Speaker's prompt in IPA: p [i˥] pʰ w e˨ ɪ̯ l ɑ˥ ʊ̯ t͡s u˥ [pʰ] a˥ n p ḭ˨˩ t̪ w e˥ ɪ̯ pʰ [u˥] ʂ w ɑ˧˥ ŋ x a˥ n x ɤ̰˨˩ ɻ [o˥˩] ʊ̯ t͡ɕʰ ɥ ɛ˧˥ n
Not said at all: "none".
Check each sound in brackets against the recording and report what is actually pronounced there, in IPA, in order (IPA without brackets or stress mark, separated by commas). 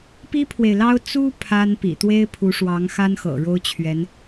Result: i˥, pʰ, u˧˥, o˥